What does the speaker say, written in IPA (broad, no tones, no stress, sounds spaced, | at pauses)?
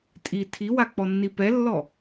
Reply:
tʼ i tʰ i w a k͡p ɔ nː i p ɛ lː ɔ